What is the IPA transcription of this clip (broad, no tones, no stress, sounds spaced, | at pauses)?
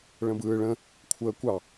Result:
ɭ ə̃ b ɯː ɭ ə̃ | kʷʰ əː kʷ ɑ